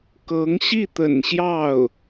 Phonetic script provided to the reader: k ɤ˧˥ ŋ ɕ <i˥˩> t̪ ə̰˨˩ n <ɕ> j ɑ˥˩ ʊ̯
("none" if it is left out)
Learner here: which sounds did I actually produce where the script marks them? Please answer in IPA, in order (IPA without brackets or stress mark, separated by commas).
i˥˩, ɕ